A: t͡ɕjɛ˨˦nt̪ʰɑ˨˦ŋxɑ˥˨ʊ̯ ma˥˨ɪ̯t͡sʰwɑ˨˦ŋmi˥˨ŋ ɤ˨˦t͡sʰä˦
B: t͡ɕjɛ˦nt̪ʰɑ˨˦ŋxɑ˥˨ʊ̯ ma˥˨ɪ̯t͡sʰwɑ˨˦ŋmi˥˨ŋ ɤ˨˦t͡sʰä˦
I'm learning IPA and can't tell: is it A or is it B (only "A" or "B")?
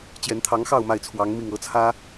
A